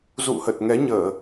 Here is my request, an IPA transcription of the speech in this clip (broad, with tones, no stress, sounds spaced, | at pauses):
z ṵ˧˨ h ə˨˩ t̚ ŋ ɛ˨˦ ɲ əː˧˩˨